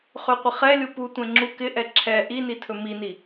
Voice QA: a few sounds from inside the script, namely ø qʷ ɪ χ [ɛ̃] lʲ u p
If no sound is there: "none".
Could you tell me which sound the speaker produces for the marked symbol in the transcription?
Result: ɛ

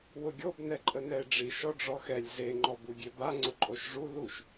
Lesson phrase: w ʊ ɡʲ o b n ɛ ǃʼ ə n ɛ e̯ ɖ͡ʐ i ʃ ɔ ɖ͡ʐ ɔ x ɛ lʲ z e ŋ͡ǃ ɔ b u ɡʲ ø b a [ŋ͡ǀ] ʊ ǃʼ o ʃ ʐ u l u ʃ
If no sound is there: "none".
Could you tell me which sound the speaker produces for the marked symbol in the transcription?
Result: ŋ͡ǀ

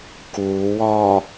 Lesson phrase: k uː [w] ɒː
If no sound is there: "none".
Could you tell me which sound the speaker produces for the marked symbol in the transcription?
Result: w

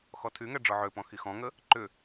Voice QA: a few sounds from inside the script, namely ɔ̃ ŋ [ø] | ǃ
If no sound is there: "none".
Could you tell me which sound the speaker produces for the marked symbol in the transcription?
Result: ə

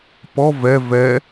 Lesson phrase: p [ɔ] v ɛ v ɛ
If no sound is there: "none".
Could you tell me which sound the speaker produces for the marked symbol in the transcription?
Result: ɔ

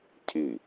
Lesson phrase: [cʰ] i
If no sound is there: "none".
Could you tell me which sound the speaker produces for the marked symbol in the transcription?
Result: cʰ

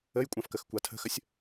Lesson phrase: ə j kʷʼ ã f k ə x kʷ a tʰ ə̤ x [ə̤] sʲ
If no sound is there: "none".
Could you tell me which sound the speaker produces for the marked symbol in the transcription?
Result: ə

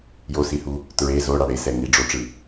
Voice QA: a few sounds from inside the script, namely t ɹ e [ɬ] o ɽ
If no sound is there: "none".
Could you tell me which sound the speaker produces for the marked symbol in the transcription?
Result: z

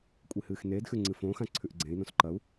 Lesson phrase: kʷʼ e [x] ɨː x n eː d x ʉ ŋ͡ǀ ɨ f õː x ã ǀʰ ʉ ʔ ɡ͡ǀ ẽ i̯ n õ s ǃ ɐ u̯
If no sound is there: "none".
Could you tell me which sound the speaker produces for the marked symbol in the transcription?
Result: h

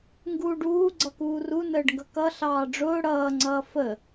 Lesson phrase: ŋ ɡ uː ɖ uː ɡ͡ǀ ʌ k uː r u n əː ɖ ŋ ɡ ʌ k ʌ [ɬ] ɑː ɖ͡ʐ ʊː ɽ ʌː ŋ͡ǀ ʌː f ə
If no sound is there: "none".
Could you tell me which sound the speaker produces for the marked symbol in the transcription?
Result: ɬ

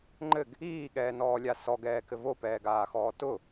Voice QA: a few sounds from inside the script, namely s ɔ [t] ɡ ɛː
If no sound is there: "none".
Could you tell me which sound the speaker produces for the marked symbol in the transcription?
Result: none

